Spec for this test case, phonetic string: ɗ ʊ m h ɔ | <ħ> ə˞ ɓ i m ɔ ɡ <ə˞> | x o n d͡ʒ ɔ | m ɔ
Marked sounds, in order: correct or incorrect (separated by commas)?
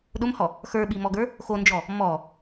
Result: incorrect, correct